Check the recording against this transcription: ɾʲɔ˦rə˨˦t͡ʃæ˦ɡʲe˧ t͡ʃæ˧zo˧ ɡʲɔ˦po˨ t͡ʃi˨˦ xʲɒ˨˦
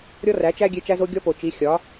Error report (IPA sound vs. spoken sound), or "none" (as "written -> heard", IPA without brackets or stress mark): ə˨˦ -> æ˨˦